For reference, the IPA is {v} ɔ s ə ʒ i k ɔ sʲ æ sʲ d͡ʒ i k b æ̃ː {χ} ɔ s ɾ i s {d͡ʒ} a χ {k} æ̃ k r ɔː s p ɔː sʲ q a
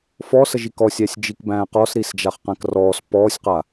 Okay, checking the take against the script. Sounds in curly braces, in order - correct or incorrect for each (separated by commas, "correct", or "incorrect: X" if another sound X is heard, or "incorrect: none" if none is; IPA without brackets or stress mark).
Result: incorrect: f, incorrect: q, correct, incorrect: q